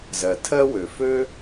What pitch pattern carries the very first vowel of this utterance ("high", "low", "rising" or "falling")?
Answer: low